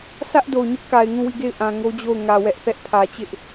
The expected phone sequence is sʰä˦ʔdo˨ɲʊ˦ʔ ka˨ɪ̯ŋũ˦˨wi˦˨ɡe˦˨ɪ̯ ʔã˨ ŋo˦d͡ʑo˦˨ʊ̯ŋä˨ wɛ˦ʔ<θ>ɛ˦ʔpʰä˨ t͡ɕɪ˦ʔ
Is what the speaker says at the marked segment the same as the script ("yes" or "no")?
yes